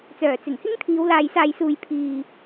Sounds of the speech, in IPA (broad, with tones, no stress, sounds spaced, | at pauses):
t͡s œː˨˩ t͡s ɪ˨˩ ŋ h ɪ˥ ŋ t̪ʰ iː˨˧ w l aː˨ j s aː˨ j s uː˨ j pʰ iː˨